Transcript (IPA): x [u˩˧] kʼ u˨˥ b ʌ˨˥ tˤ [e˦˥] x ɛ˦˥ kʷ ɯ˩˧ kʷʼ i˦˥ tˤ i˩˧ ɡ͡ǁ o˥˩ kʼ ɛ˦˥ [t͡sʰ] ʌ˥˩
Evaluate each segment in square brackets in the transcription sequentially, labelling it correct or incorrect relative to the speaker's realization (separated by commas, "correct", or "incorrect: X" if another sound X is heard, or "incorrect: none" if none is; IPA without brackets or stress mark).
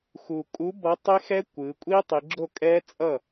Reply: incorrect: u˨˩, correct, incorrect: t͡sʼ